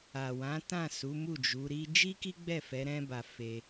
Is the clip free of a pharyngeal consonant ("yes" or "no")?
yes